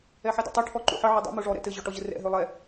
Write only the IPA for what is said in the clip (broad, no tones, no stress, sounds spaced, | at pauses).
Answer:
ɛ ħ ɛ d ɔ̰ tˤ o ʈʰ ɔ ǃ ṵ ħ ə ʕ ɘ dˤ ṵ m o ʐ ɔ ɾ ɛ̰ t ɘ ʑ ɔ ʈ ɔ ʑ ɘ r ɛ̰ ɦ ø lˠ ɛ